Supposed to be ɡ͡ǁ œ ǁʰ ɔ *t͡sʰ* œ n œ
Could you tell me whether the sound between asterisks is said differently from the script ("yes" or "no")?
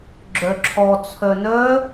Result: no